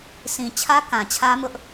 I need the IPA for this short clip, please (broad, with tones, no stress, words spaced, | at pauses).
sʰĩ˨t͡ɕʰä˦ kã˨t͡ɕʰä˦mʊ˦ʔ